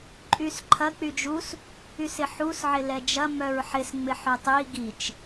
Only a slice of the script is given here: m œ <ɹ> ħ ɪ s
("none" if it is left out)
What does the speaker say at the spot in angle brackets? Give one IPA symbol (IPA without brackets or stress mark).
ɹ